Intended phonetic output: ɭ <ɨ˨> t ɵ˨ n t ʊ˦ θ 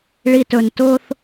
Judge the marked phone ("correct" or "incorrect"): incorrect